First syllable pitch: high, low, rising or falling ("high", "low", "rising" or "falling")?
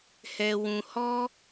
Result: low